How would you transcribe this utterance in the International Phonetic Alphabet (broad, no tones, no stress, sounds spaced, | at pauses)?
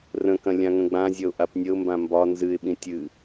r ə̃ k ɐ̃ lʲ ã ŋ ə̃ ɡ͡b ã zʲ ɐ ʊ̯ ʔ a p nʲ ə ʊ̯ m b ã m b ɒ n z ɨ ɪ̯ ɓ ĩ tʲ ɨ